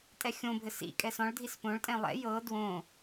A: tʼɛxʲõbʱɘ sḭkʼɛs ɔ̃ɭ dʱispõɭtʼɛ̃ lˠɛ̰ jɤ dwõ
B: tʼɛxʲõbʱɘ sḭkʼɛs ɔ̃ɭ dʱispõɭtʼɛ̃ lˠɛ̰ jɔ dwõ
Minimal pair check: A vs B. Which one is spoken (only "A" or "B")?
A